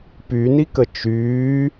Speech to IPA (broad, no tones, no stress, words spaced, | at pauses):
pynikə t͡ʃyː